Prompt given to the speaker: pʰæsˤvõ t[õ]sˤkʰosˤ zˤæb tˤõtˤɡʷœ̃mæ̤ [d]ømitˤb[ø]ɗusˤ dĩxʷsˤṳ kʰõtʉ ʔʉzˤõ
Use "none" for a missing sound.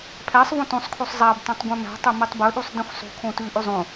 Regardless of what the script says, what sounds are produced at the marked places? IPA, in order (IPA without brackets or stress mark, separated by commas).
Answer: õ, tˤ, ɵ